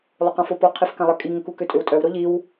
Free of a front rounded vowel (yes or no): no